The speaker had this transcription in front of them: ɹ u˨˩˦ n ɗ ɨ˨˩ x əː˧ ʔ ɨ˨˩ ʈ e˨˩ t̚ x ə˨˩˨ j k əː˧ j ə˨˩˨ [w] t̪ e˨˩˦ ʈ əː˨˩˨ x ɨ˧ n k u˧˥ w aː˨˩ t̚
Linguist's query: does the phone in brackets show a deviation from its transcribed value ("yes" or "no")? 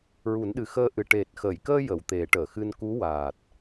no